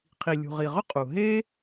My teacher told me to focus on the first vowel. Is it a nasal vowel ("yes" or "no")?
no